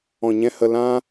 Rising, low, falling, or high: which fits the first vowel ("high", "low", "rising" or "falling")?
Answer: low